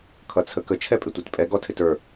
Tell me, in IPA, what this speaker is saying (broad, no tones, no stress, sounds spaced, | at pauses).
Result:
kʰ ʌ t͡sʰ ə k ə t͡ʃʰ ɛ pʼ ɪ tʷ i t pʼ ɛ ɡ ɔ tʰ ɪ t ə˞